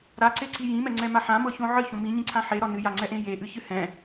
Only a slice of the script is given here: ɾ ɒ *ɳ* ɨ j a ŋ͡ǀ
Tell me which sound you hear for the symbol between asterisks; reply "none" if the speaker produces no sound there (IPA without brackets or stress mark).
n